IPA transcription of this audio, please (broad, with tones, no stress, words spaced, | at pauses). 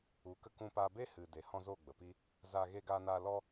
u˨˦ kə˦kũ˦paː˦ be˦hɨ˨ de˨hɔ̃˧ zo˦˨ɡ͡bə˨pi˦ | za˧ ɣe˧ɡaː˧naː˧lɔ˦